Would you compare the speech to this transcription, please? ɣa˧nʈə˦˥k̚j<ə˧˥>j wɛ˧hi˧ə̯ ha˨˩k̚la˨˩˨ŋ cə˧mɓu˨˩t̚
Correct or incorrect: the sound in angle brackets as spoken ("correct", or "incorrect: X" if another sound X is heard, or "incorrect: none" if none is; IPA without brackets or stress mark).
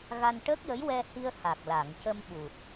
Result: correct